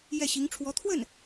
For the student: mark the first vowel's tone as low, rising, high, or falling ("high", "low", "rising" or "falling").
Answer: falling